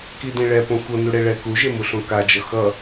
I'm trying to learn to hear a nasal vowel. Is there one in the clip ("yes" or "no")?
yes